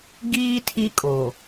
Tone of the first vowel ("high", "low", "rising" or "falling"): high